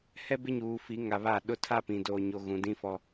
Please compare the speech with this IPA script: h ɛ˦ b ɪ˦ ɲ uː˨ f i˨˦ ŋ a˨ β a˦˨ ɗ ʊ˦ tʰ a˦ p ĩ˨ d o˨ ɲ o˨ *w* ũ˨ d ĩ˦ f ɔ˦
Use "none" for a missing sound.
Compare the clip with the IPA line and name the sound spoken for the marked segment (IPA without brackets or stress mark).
ɣ